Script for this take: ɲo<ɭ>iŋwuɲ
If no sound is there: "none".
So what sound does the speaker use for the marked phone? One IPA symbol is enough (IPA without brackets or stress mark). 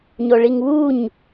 ɭ